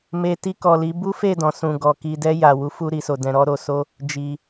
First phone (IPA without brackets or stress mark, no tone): m